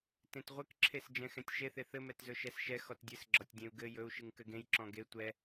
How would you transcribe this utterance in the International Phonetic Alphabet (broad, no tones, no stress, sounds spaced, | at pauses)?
t ẽ t ʁʷ ɘ k ǁʰ e s d͡ʒ ɛ̃ x ɛ̃ tʲ ʃ e θ e θ ɘ m ɛ t z ɵ ʃ ɛ s ʃ ɛ x ɔ t dʲ ɘ s ɡ͡ǁ ɒ tʲ dʲ ẽ u̯ ɡ ɘ j ɵ u̯ ʃ ɨ ŋ k ɘ ɡ ẽ j ǁ ɔ̃ ɡ e tʷ ɛ